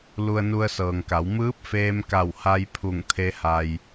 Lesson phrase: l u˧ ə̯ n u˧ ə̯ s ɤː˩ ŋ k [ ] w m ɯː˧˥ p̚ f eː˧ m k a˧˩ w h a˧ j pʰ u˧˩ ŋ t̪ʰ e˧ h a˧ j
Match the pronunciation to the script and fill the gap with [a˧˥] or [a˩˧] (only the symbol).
a˩˧